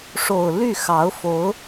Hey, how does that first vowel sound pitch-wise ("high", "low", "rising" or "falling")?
low